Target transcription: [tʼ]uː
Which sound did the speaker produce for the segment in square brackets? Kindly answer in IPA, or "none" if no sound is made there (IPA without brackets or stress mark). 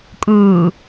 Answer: kʼ